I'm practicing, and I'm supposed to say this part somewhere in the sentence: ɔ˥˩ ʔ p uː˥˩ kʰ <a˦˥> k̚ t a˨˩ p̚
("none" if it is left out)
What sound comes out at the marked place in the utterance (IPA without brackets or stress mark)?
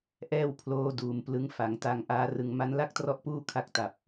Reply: a˦˥